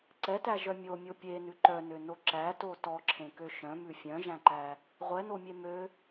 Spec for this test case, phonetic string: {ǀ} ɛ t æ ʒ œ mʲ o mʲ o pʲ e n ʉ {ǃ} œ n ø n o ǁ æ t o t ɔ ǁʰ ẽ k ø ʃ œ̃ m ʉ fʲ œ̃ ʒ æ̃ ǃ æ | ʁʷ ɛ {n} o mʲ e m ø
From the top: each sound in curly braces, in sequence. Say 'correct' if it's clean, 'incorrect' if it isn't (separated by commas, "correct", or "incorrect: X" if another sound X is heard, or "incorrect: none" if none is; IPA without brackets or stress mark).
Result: correct, correct, correct